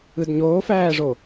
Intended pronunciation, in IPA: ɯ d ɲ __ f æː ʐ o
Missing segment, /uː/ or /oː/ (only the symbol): oː